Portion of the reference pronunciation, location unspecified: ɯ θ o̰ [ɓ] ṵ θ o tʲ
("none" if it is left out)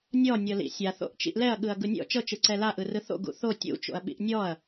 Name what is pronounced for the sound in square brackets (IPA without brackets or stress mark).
ɡ